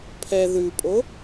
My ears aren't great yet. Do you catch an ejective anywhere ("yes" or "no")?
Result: yes